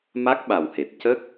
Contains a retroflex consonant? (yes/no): no